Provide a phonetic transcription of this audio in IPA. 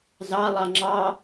zɑ lˠɑŋ͡ǁɑ

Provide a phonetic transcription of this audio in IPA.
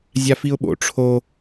zʲafiʊ̯ɓo̰ ʈ͡ʂʰo

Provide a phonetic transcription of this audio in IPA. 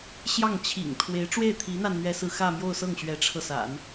ɕjɑ˥˩ŋt͡ɕʰḭ˨˩ŋt̪ʰwe˧˥ɪ̯ ʈ͡ʂwe˥˩ɪ̯t̪ʰi˧˥n̪a˧n n̪ɥɛ˥sɹ̩˥˧ xä˥˧mjo˥˧ʊ̯sɤ˥˩ŋ ɕɥɛ˧˥ʈ͡ʂʰɤ˧sa̰˨˩˦n

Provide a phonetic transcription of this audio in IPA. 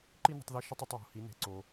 ǃi˥nə̤˧tˤði˧ ʃə˧tˤ ʏ˩˧tˤwo̤˩hi˩˧ ne̤˩ǀo˩

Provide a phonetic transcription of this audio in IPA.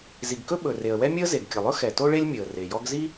zi˩ɡkɵ˥ ɓɵ˩ re˩ə̯wɛ˥mʲɵ˥ə̯ ze˩ɡkʲə˩lˠɵ˥ xɛ˩to˥ ɭe˥lʲmʲɵ˩ə̯ re˩jɔ˥ɡ zi˥

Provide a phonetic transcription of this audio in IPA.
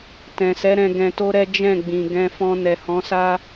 tɛ̃˨sɛ˨˦ɾɛ̃˧ ɡɛ̃˧to˦ɾɛ˦ d͡ʒɛ̃˦˨ɡ͡bĩ˨ ɡɛ̃˧fɔ̃˧ nɛ˨hɔ̃˨˦sa˦

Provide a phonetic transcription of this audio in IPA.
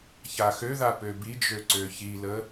çaxøða pøbid͡ʒø ǀøçilə

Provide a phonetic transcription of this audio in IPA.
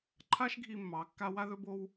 ǃʰa˦ʃɡʱi˧ mːɑ˨˦kːa˦ wa˦ðɵ˦bo˦w

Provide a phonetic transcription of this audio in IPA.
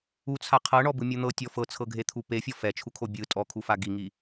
ut͡sʰa qʰɤɳɔbɯmʲo n̪ɤtʲɔ fɤt͡sʰɤɡʱet̪ʰu pefʲɔ fɛt͡ʃʰukʰo bʲɯ tʼɔkʰufa ɡiŋi

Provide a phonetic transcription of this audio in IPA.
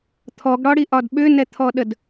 t̪ʰɔɡɽɒɽiʔɒd ɓʏnɛt̪ʰɔɗəd

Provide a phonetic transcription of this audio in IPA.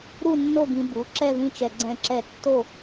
ɾu˥˧nːo˥˧ɡĩ˧ bu˩˥ ǁɛ˥˧ðĩ˥˧t͡ʃɛ˧ ɡ͡ǀɛ̃˥˧ǁɛ˥˧ tːo˥˧

